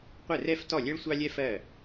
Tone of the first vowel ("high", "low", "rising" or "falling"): falling